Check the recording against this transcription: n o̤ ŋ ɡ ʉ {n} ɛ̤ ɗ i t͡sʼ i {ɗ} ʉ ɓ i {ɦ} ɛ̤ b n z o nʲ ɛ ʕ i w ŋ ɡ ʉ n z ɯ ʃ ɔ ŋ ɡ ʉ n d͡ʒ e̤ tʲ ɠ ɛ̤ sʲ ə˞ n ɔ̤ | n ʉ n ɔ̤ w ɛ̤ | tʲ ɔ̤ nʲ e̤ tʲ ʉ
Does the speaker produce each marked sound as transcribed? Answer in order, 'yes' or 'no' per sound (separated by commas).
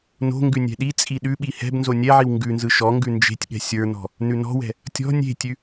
no, yes, no